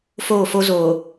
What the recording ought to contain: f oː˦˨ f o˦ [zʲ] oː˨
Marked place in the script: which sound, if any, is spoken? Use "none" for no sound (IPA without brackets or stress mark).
z